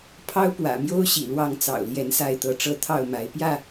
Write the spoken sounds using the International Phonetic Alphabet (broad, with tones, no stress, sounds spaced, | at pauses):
pʰ ɑ˦ ʊ̯ p w ä̰˨˩ m j o˦ ʊ̯ ɕ ḭ˨˩ l w ɑ˥˨ ŋ t͡s ɑ̰˨˩ ʊ̯ l j ɛ˨˦ n s a˥˨ ɪ̯ t̪ ɤ˨˦ ʈ͡ʂ ɤ˥˨ t̪ʰ ɑ˥˨ ʊ̯ m a˨˦ ɪ̯ p j ä˥˨